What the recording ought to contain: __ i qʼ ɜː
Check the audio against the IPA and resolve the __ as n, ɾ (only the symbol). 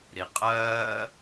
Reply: ɾ